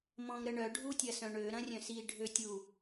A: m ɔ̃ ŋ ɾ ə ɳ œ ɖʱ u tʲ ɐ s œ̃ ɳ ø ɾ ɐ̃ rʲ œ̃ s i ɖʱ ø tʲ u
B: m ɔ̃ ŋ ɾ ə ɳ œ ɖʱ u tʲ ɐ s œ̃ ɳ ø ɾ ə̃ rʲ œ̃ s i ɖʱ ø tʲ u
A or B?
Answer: A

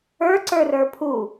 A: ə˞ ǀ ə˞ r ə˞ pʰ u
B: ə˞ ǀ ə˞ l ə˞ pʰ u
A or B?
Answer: A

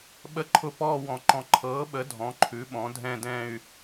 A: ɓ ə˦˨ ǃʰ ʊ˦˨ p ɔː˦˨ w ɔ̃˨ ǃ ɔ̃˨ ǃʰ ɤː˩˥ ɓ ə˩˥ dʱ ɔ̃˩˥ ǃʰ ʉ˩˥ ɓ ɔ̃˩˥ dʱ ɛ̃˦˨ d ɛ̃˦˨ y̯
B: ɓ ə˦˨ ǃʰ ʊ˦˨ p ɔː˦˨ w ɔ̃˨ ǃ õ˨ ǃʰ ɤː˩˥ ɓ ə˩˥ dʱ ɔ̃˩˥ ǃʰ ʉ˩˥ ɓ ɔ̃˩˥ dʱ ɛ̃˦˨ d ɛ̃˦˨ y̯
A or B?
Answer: A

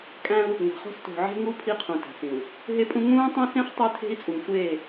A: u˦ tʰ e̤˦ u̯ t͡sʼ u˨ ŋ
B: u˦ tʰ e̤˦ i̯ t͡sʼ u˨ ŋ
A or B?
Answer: B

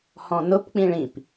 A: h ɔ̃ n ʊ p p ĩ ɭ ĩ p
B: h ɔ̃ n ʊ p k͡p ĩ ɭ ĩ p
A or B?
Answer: B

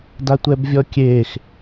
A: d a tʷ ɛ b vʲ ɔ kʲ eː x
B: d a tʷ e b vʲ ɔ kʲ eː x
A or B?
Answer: A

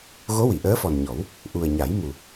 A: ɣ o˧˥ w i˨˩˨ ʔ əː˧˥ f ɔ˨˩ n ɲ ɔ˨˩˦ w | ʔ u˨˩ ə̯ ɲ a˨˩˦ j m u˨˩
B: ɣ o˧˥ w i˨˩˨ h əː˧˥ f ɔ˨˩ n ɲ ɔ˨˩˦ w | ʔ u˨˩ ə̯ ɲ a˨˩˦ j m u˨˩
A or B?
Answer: A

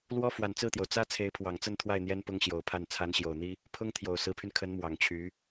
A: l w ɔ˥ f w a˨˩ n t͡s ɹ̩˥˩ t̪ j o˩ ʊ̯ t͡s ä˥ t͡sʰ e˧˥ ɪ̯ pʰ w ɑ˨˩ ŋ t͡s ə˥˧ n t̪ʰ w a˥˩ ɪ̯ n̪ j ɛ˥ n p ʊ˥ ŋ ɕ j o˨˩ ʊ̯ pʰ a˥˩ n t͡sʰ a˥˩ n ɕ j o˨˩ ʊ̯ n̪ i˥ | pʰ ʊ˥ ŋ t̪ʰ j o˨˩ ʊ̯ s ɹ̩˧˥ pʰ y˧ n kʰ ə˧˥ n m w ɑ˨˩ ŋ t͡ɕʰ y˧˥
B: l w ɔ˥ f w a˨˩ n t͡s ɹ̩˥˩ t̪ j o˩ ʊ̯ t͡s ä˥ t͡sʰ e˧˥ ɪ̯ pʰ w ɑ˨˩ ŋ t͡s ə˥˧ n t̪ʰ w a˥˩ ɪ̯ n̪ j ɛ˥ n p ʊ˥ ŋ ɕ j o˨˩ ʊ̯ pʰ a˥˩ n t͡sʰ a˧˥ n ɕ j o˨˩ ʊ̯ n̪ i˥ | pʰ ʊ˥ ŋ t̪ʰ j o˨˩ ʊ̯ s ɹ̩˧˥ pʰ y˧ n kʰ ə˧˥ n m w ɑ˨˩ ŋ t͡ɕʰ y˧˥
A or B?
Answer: B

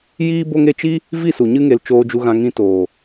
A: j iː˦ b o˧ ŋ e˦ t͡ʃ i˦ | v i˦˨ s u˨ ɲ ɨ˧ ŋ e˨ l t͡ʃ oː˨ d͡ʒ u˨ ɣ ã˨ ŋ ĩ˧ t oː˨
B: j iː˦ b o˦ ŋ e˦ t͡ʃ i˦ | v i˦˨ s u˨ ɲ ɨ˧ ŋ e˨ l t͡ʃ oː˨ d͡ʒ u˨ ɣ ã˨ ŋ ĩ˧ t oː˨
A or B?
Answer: B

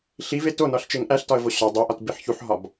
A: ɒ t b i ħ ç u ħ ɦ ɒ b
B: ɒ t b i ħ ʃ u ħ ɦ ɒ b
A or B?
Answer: A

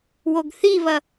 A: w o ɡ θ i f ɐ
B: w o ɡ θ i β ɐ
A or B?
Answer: B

